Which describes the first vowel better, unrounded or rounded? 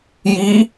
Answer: unrounded